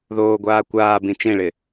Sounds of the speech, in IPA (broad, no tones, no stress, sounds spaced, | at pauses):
ð oː ɡʷ aː kʷ aː b ĩ t͡ʃ ẽ ɭ ɪ